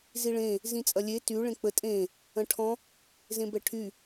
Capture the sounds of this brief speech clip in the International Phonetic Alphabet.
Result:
z i ɭ ẽ | z ĩ t͡sʼ ɐ lʲ e t y ɭ ẽ k͡p ə tʼ ẽ | ɐ̃ ʈʰ ɔ̃ | z ẽ b ɛ ʈʰ y

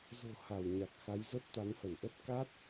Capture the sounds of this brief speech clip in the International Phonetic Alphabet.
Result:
z o̤˨˩ h a˧˩ w ɲ a˨˩ k̚ x a˨˦ j z ə˦˥ t̚ t̪ a˨˦ n h ə˧˩ n ʔ ə˦˥ t̚ k a˦˥ t̚

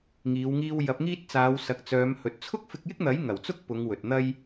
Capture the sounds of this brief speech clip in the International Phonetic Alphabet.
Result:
ŋ iː˨˧ w ŋ iː˧ w j ɐ˨˥ p̚ ŋ iː˥ t̚ t͡s aː˨˧ w s ɐ˨ k̚ t͡s œː˨˧ m h ɵ˨ t̚ t͡sʰ ʊ˥ k̚ f ɪ˧ k̚ j ɪ˥ k̚ n̪ ɐ˨˥ j ŋ ɐ˨˩ w t͡s ʊ˥ k̚ p ʊ˨˧ ŋ w ɵ˨ t̚ n̪ ɐ˥ j

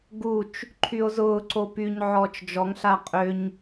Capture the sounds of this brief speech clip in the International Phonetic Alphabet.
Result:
ɡ u t͡ʃ | ǃʰ y o̯ z ʊː ǀ o p y ɲ ʕ ɔː t͡ʃ d͡ʒ ɔ ŋ ɬ a qʼ ø ɲ

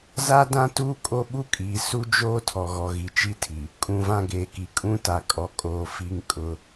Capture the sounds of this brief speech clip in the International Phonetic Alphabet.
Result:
z a˦ d ã˦ t uː˦ kʼ o˦ ɓ u˦ kʼ iː˨ s u˦ d͡ʒ oː˦ tʰ ɔ˨ ɣ ɔ˨ ɣ i˨ t͡ʃ i˦ tʰ i˨ | kʼ ũ˨ v ã˦ ɡ eː˨ k i˨ kʼ ũ˦ t a˨ kʼ ɔ˨ kʼ oː˨ f i˦ ŋ kʼ ʊ˦

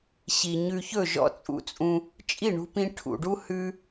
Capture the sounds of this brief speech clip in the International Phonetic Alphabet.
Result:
ɕ i˨ ɲ ʉ˧ ç ɵ˦˨ ʒ ɔ̰˧ t͡sʼ ṵ˧ t͡sʼ ũ˧ | t͡ʃʼ i˦˨ ɳ ṳ˧ p ĩ˧ ʈʰ ṵ˨ ɖ u˦ h ʉ˦

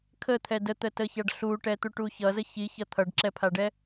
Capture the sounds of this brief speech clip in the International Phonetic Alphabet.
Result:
kʰ ə t̪ʰ ɛ d ə t̪ ə t ə ç a ɖ ɬ u ʈ ɛ t̪ u ʈ u ç ʌ z ə ç i ç ʌ t̪ʰ ʌ ɖ ǁ ɛ pʰ a ɖ ɛ

